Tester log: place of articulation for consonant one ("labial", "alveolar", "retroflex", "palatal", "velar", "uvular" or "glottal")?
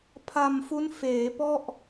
labial